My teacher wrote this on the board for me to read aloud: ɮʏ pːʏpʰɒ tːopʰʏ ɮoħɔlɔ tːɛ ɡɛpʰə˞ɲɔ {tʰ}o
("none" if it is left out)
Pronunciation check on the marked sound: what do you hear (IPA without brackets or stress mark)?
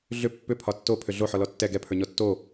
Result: tː